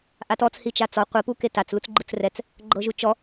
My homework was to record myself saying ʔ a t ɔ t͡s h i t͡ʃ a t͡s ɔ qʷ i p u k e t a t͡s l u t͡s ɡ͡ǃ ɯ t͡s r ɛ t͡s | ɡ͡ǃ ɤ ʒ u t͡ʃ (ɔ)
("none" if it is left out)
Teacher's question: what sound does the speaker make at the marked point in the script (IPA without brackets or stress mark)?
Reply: ɔ